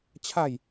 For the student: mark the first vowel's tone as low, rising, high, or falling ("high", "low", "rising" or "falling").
falling